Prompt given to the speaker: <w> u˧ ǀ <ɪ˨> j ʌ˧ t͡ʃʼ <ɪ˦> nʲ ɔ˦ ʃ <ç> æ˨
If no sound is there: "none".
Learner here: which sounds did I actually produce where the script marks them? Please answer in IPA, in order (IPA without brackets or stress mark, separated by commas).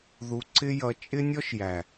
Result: ð, ɪ˦, ɪ˦, j